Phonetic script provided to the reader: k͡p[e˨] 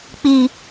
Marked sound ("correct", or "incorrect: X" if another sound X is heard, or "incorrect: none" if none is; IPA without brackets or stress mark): incorrect: i˨